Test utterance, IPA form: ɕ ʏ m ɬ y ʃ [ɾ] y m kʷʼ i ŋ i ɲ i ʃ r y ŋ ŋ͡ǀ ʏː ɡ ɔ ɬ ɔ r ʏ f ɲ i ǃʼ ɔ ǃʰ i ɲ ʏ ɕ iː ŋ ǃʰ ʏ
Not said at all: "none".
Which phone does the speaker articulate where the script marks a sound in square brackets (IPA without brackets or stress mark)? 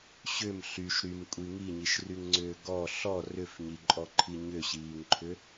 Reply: ɾ